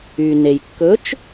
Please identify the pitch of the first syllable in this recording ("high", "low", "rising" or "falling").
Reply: low